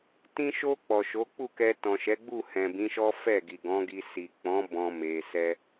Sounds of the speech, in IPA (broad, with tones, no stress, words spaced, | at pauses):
tĩ˧ʃo˧ k͡pɔ˨ʃo˨˦k͡pu˦˨kɛ˧ tɔ̃˨ʃɛ˨˦ɡ͡bu˦˨ hɛ̃˨bĩ˨˦ʃɔ˦ fɛ˦˨ɡi˨ɡɔ̃˨˦ɡi˧ si˨k͡pɔ̃˨˦ bɔ̃˦me˧sɛ˦